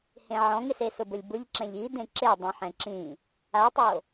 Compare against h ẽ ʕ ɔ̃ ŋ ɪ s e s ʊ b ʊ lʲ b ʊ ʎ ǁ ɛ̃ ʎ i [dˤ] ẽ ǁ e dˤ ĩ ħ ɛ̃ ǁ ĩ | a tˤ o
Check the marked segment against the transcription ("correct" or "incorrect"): incorrect